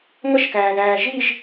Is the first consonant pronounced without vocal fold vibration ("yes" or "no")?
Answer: no